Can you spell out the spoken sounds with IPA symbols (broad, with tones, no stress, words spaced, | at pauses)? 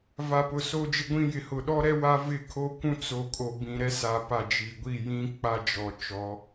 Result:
va˨pʊ˨ so˦d͡ʒɪ˦ɡʷĩ˦ jɪ˨hʊ˨ɗɔ˦ɾɛ˦ wa˦vɪ˦˨kʰo˦kʷũ˦ t͡so˨kʼo˨bĩ˨ ɾɛ˦sa˨pa˨ d͡ʒi˨ɡʷi˦˨jĩ˦ k͡pa˦d͡ʒɔ˨t͡ʃɔ˨˦